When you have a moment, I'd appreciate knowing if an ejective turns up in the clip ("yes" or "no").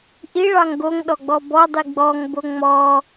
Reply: no